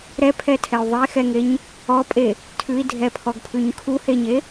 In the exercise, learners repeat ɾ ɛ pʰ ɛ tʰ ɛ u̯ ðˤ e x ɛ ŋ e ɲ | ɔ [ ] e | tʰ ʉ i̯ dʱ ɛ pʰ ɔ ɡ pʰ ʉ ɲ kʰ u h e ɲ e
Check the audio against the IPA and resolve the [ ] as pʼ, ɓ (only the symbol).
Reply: pʼ